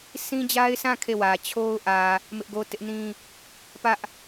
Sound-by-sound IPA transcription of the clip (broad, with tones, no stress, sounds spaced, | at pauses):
s ĩ˦ d͡ʑ a˦ ɪ̯ s ã˦˨ kʰ e˦˨ w ä˨ t͡ɕʰ o˦ ʊ̯ ʔ ä˨ | m ɪ˦ ʔ ɡ o˦ t ɪ˦ ʔ n ĩ˦ | p ä˦ ʔ